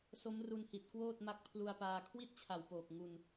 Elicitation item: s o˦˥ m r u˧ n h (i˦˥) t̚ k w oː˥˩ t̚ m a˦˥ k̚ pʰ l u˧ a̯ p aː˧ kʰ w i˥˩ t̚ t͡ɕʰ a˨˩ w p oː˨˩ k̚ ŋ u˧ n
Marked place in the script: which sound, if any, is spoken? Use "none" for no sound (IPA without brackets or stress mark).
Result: i˨˩